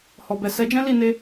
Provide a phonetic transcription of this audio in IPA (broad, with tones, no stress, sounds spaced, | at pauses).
h ɔ˨ b ɛ˨ s ɛ˨˦ d͡ʒ ɛ̃˦ l i˦˨ n e˧